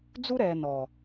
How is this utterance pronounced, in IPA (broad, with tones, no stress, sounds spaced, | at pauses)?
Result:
d͡z u˦ ɾ ɛː˨ n ɔ˨